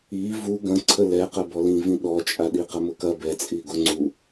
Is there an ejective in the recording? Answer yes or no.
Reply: yes